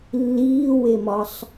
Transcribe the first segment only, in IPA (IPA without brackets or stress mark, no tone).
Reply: lː